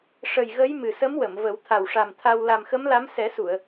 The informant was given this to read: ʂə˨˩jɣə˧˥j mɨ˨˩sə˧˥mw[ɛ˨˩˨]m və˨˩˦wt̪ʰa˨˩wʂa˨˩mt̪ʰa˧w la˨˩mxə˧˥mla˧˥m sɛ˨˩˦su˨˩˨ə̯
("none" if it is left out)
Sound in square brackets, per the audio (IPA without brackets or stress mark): ə˨˩˨